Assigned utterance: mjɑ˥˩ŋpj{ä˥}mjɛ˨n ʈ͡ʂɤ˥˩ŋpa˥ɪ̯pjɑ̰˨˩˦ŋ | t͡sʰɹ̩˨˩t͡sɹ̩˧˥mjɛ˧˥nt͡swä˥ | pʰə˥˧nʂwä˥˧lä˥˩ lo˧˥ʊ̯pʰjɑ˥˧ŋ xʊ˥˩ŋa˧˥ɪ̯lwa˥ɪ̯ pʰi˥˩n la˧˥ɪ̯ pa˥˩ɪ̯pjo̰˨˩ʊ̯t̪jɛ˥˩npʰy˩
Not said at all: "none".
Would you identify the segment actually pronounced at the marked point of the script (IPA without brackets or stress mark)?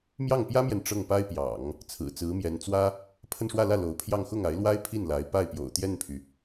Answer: ä˥